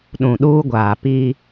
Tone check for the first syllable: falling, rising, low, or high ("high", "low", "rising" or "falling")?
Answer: low